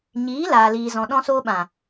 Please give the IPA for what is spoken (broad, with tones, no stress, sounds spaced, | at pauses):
ɲ iː˨˦ l aː˨ l iː˨ z ɔ̃˨ ɗ ɔ̃˧ s oː˧ ɓ ã˨